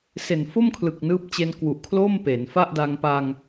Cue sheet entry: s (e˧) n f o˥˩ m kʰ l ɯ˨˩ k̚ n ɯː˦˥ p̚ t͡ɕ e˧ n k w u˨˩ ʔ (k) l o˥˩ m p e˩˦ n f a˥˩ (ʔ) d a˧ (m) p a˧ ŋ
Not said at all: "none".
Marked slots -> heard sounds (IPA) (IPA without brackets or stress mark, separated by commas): e˨˩, kʰ, ʔ, ŋ